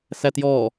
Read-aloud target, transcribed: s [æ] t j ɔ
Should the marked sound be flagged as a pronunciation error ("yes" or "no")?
no